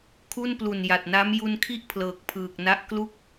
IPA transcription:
kʰ u˥˩ n p l u˨˩ n j a˨˩ t̚ n a˦˥ m j u˧ n kʰ i˥˩ ʔ pʰ l ɤː˨˩ k̚ pʰ ɯː˨˩ k̚ n a˦˥ ʔ k l u˦˥ k̚

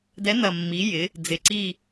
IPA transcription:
d ɛ˨˦ n ɐ˨˩ mː i˨˦ j ɪ˨˦ | d͡z ɪ˨˩ ǀ i˦˨

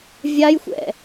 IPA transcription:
vʲ a j xʷ ɛ̰

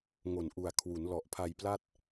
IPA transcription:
ŋ o˨˩ n ʔ u˨˩ a̯ kʰ w u˩˦ n l ɔ˨˩ ʔ pʰ a˧ j p l a˥˩ t̚

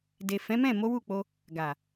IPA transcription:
d e˨ f ɛ̃˨˦ m ɛ̃˦˨ m o˨˦ w u˦˨ k͡p o˧ | ɡ a˨

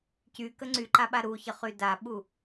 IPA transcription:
c y k ə ŋ͡ǀ y ǃ a ɓ a ɾ u ç ə χ y d a ɓ u

